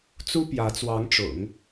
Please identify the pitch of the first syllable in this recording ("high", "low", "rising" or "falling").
high